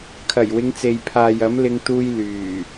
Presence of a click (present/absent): absent